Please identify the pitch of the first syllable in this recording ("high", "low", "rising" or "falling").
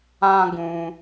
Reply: high